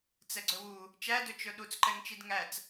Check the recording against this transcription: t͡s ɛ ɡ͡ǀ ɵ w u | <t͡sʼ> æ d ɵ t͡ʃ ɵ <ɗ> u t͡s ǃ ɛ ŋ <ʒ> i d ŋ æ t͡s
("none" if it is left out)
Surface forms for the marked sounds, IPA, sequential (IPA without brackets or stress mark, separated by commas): t͡ʃ, ɗ, t͡ʃ